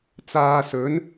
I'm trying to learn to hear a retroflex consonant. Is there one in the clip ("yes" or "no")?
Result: no